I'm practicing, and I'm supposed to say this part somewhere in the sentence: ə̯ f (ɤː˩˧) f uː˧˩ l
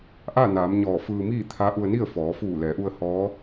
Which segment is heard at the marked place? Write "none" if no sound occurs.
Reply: ɔː˩˧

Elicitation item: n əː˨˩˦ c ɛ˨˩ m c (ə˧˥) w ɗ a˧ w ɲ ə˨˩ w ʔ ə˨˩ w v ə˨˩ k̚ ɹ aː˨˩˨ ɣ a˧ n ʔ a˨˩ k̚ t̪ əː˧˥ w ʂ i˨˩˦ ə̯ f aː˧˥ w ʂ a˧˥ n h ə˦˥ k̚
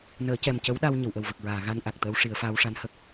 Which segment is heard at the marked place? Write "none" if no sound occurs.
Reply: ə˧˥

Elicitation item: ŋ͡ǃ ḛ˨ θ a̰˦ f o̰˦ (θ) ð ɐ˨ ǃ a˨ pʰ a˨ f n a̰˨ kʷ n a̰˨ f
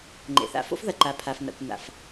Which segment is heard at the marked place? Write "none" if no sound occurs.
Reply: f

